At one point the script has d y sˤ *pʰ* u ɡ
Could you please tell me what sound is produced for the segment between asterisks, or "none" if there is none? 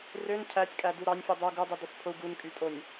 pʰ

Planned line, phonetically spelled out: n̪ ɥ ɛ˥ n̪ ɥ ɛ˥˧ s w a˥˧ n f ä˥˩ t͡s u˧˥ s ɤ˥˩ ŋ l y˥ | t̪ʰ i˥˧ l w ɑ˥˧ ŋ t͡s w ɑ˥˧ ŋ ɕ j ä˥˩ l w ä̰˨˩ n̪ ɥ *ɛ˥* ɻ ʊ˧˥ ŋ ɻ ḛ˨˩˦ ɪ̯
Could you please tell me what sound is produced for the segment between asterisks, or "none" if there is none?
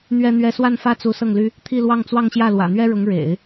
ɛ˥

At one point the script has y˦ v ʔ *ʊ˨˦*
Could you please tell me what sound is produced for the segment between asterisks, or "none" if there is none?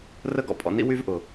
ʊ˨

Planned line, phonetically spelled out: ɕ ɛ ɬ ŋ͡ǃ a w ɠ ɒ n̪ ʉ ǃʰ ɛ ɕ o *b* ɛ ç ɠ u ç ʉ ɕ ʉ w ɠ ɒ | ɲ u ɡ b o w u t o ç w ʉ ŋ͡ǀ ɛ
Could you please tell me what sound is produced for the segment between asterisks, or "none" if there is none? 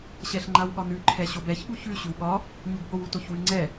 b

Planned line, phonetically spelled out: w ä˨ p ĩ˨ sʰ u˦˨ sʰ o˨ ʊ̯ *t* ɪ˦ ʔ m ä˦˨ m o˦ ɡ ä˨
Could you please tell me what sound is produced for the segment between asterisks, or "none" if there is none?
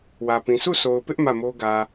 p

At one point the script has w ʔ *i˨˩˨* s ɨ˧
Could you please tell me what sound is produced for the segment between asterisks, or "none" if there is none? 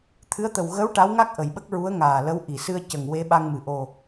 i˨˩˨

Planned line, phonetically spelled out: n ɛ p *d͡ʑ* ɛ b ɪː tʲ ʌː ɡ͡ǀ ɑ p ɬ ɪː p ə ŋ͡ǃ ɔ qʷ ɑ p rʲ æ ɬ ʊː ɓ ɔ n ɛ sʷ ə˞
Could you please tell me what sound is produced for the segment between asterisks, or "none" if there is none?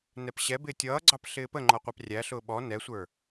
ɕ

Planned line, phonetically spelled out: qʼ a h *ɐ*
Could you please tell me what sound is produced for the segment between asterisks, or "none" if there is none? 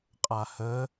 ə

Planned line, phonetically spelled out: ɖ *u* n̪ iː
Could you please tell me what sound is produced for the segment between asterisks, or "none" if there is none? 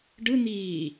ɯ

